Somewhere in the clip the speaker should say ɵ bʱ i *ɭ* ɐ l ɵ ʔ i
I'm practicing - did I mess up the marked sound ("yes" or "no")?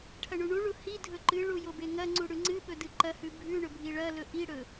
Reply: no